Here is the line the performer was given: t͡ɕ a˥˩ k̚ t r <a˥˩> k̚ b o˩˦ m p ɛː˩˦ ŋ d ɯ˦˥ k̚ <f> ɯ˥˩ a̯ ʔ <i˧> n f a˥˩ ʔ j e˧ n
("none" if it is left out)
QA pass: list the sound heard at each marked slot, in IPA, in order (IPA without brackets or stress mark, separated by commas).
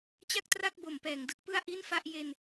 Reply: a˥˩, p, i˥˩